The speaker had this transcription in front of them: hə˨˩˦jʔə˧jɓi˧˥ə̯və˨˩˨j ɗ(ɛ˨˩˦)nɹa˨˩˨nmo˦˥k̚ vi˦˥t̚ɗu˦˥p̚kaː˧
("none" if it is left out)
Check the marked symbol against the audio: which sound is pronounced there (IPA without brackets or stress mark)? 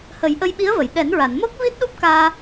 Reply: ɛ˨˩˦